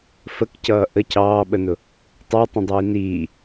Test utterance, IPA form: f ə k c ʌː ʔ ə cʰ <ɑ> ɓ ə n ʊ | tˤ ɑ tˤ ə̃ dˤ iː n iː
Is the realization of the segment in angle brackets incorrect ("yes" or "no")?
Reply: yes